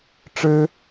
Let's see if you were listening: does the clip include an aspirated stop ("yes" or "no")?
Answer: no